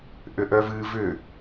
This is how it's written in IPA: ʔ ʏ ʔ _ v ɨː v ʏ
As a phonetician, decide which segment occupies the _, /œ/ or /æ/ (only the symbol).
œ